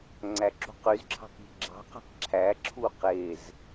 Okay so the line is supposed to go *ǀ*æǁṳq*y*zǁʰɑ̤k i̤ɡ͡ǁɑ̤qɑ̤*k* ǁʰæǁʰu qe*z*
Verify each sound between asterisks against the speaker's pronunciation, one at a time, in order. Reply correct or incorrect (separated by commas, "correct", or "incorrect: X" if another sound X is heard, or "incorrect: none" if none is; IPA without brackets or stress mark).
incorrect: ŋ͡ǀ, correct, correct, correct